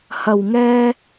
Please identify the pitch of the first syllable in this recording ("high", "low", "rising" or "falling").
low